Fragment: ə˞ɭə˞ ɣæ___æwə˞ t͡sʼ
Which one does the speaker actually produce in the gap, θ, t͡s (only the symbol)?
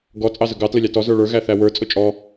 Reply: θ